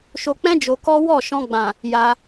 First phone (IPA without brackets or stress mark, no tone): ʃ